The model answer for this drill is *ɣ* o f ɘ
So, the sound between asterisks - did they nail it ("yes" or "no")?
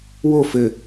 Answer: no